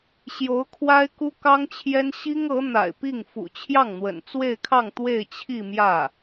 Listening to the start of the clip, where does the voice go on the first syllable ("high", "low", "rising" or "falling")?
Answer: rising